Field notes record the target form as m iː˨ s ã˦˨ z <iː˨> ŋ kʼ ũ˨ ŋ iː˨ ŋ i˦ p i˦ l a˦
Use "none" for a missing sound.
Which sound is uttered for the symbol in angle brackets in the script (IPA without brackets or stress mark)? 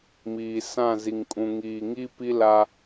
i˨